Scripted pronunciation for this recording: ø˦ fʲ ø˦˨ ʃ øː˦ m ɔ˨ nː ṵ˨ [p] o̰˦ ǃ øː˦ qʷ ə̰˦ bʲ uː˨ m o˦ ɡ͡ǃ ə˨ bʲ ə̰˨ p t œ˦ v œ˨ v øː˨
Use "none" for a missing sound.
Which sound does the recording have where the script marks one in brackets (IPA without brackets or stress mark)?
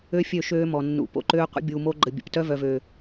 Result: p